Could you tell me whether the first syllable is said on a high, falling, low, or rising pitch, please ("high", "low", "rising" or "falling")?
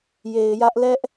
low